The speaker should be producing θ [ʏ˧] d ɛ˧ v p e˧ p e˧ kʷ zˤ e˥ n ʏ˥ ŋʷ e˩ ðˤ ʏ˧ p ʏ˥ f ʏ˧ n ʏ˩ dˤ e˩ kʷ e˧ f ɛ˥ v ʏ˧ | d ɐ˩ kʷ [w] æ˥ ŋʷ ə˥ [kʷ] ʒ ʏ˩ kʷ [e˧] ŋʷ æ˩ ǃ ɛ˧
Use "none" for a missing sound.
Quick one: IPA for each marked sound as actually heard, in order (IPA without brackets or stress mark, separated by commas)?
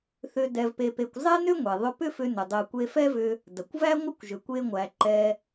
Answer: ʏ˧, v, kʷ, e˧